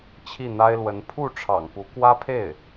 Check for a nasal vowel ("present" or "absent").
absent